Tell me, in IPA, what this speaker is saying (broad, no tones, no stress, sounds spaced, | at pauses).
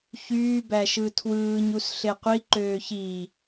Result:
ç yː b æ ʃ ɯ tʰ w ɯː ɲ u s ɬ e qʷ i ǃ øː ç i